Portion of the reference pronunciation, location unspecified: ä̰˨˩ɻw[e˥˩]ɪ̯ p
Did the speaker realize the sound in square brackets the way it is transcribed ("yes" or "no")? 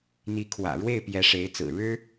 yes